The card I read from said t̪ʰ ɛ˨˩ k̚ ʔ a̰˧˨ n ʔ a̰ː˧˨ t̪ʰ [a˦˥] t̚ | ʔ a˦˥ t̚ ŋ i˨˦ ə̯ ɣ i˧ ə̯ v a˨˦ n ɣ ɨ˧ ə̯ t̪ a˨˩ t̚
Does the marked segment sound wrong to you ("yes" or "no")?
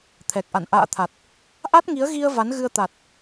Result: yes